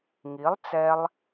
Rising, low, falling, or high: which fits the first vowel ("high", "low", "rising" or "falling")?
rising